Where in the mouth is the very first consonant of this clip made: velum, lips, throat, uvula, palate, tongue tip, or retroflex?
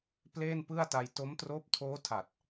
lips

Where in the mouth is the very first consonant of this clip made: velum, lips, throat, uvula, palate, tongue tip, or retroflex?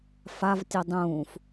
lips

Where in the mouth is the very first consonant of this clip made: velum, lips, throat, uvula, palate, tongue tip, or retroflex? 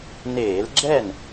tongue tip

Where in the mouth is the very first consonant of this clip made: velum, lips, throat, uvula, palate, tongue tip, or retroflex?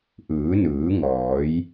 throat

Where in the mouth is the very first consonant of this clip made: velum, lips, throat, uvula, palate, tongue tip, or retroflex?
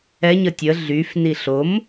palate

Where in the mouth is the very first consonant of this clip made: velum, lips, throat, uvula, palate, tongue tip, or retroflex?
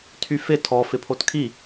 tongue tip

